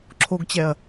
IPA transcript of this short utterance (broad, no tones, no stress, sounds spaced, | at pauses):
ǁʰ o ɡ t͡ɕ ɛ ɐ̯